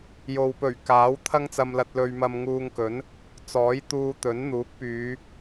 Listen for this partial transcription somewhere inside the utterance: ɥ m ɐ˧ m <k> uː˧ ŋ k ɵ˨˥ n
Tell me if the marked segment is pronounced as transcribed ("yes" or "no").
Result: no